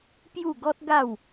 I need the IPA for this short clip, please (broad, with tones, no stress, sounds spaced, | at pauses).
p j u˥˧ ɡ ɔ˦ t̚ ɡ a˥˧ w